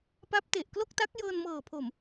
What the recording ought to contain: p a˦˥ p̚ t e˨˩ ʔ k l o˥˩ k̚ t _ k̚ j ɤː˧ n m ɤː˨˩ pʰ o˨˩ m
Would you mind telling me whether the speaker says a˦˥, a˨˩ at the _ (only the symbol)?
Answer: a˦˥